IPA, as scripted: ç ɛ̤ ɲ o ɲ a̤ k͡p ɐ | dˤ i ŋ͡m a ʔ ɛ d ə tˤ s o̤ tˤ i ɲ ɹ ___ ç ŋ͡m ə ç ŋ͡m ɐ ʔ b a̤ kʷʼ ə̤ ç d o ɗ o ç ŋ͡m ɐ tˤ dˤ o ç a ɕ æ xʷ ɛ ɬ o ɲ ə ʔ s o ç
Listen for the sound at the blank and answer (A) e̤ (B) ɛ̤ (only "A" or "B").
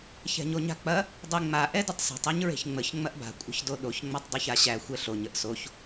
A